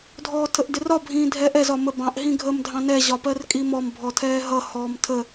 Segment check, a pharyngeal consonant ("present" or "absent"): absent